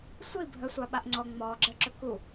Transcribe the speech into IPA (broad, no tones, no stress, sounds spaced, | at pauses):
sʷ i bʱ ə sʷ a ɓ a ʔ ŋ͡ǀ ɔ ŋ͡m ɔː ɡ͡ǁ əː ǁ ɵ k u